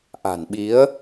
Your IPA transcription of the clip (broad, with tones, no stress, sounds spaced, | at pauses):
ʔ a̤˨˩ n ɓ i˨˦ ə̯